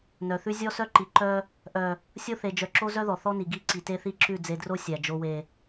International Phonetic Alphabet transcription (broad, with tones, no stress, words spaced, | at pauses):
nœ˨θʉ˦ zʲɔ˦ sœ˦ǃi˨ ǃœ˦ | ʔœ˨ | sʲo˦θe˨ d͡ʒœ˨ǁo˦ zœ˦ðɔ˨θɔ˦ni˨ ɡi˦ ǀi˨te˦θi˦ǁʉ˦˨ d͡ze˨dro˦ sʲæ˨ d͡ʒo˨we˨